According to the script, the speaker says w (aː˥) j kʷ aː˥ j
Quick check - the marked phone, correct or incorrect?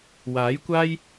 incorrect